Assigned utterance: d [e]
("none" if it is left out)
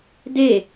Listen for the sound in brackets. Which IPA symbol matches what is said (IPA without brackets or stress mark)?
e